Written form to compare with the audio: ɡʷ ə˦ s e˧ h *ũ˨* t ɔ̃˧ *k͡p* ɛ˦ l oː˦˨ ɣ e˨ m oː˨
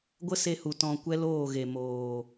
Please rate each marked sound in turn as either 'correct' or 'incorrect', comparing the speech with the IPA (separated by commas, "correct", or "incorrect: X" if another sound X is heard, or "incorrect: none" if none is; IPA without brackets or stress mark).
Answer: incorrect: u˨, incorrect: kʷ